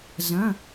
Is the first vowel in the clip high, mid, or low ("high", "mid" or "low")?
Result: low